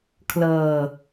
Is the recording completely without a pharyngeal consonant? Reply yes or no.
yes